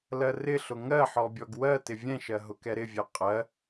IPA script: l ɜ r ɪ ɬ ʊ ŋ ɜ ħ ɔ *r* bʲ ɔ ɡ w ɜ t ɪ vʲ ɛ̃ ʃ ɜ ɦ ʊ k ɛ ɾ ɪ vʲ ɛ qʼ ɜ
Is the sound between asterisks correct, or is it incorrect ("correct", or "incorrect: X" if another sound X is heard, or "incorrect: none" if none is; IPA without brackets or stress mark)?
incorrect: none